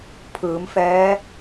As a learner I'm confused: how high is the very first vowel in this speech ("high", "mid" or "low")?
high